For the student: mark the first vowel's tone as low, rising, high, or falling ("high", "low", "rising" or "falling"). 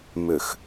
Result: low